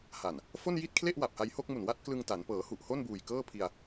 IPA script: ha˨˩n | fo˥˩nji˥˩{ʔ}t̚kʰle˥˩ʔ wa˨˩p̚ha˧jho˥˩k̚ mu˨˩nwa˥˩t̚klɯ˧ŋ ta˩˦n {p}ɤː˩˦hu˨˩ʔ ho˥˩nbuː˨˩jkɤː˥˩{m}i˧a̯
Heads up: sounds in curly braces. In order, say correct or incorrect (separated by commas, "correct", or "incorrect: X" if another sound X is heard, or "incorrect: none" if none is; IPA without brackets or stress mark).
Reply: incorrect: none, correct, incorrect: pʰ